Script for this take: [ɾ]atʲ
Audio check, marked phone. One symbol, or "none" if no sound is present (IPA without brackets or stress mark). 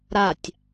ɾ